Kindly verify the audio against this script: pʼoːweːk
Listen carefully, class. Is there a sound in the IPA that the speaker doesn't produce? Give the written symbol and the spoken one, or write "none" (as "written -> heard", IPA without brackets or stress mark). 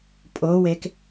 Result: none